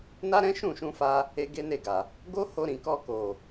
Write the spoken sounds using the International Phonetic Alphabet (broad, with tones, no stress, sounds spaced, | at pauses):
n a˦ ɾ ɛ̃˦ ʃ ũ˦˨ ʃ ũ˧ f a˧ | e˦ ɡ e˦ n e˦˨ ɡ a˨ | ɡ o˦ h o˧ ɾ ĩ˨ k ɔ˧ k o˨